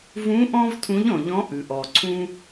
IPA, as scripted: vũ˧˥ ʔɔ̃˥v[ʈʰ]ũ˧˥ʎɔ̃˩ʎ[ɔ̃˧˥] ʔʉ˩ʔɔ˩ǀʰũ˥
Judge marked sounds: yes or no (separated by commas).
no, yes